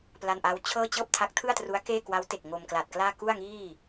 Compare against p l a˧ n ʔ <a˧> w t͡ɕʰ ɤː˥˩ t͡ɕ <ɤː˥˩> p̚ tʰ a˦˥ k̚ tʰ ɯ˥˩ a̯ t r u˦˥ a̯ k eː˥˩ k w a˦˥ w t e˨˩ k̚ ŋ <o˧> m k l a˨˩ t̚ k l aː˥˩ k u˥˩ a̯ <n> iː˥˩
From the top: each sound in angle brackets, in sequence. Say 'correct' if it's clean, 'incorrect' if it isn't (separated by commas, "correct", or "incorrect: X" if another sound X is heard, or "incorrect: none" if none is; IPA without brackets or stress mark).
incorrect: a˦˥, correct, correct, incorrect: ŋ